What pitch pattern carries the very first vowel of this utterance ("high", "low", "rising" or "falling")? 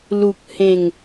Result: low